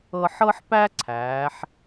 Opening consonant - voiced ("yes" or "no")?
no